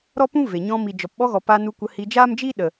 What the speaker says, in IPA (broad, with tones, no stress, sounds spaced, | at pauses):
ɾ ɔ˦ p ũ˦ v e˨ ɲ ɔ̃˧ m i˨ d͡ʒ ɔ˨ p ɓ ɔ˧ ɣ ɔ˨ p a˧ n u˧ kʷ ə˧ h i˧ d͡ʒ aː˦ m d͡ʒ i˦ ɗ ə˨